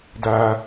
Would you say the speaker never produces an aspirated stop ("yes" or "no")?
yes